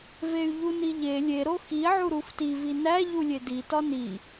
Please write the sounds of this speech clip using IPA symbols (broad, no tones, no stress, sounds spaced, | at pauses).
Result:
v e y̯ ʎ u n i ʎ e lʲ e ɾ o x i ʕ u ɾ u f t i v i n æ ʎ u lʲ e d i t ɒ n i